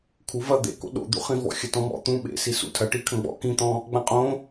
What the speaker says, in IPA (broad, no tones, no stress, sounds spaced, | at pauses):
kʰ u v ɐ d̪ ḛ k o̰ ɗ o̰ d̪ ṵ χ ĩ v ɔ̰ xʲ ɐ t ɔ̃ m ɔ̰ t̪ ũ ɓ ḛ s i s ṵ tʰ ɐ ʈ i kʰ ɐ̃ ɡ͡b ɔ̰ k ĩ t̪ ɔ̃ | ɡ͡b ã qʼ õ